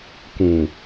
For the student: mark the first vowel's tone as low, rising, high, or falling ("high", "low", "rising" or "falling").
low